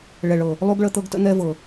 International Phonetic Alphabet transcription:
ɭɛ˨ɭɤ˨ | lˠu˦ɡɭə˦t̪ɤ˦ɡ tə̰˦n̪ɛ˦vɤ˨

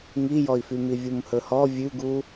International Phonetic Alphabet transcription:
ŋijɔi̯fymi vʲumhɵhɔ vʲʉɡu

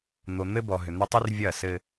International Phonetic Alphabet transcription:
n̪o˨n̪ɘ˦ bɔ˨ɦʏ˨n̪ʏ˦ tˤʏ˦rvʲɐ˦˨sɘ˦

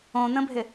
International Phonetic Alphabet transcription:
õn̪ə̃bʱɪ

